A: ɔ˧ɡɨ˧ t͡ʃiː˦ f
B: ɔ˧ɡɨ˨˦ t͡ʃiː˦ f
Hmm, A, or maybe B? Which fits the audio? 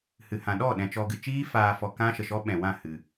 A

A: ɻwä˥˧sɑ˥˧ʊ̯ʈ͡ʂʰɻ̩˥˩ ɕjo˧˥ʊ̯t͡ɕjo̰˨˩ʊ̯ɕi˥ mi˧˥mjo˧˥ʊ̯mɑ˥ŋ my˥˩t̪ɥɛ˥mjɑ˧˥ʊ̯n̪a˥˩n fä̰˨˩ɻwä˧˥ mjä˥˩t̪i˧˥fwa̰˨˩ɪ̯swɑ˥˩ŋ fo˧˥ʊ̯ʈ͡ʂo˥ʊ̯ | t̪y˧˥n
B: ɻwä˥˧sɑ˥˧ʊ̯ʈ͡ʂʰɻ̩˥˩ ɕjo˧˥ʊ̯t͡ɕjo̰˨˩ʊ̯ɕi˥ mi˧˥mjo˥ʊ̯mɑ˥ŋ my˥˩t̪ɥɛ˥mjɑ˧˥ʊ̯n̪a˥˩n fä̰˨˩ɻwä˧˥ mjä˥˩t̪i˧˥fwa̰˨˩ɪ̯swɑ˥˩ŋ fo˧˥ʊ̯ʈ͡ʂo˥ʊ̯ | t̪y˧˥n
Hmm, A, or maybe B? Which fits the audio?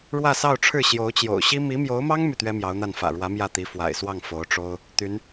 A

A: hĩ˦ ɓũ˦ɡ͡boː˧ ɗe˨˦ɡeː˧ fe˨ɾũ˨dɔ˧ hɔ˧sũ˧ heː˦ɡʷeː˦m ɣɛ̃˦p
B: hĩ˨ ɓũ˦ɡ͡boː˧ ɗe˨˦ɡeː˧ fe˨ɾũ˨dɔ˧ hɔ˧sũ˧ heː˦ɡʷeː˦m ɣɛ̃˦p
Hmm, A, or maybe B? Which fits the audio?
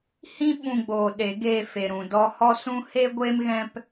A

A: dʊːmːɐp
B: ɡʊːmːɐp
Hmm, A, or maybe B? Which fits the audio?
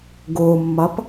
B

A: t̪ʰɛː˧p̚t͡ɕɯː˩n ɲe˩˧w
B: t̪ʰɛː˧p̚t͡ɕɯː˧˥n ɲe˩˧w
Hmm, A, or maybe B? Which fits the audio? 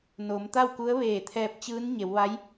B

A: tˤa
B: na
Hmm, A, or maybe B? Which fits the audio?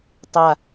A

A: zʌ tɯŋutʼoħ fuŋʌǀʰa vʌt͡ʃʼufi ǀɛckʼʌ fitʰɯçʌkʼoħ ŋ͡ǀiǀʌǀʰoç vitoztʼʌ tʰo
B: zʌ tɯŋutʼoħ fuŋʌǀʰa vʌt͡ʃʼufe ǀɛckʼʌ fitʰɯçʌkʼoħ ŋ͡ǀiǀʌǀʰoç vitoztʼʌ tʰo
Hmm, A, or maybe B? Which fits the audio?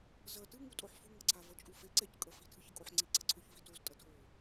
B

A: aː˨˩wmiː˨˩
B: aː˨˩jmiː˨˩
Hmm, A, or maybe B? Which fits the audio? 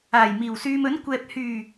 B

